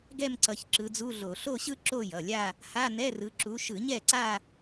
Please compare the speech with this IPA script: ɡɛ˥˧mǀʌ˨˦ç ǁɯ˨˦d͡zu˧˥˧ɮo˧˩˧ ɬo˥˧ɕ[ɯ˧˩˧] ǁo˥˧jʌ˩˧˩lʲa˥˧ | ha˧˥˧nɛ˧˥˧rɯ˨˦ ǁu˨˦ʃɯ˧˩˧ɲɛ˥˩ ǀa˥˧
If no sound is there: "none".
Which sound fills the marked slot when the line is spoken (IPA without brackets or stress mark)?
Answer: ɯ˥˧